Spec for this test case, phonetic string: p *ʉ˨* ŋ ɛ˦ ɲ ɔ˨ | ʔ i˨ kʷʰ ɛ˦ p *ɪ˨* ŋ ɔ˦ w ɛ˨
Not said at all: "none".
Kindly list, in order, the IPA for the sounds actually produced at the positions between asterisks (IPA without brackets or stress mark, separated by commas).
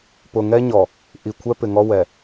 ʊ˨, ɪ˨